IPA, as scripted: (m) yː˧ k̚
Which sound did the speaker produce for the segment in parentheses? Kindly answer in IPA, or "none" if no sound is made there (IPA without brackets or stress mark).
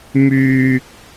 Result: m